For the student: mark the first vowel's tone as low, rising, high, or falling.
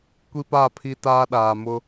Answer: high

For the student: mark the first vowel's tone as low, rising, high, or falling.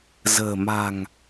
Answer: low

